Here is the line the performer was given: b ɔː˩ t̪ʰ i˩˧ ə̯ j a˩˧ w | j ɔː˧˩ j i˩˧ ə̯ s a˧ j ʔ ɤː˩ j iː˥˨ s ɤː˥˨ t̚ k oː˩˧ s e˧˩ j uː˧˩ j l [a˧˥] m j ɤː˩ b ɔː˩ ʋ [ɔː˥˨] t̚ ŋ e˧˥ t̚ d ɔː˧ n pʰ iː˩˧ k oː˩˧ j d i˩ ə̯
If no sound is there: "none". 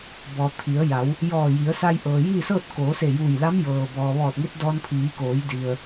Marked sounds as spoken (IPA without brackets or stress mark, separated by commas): a˧˥, ɔː˧˩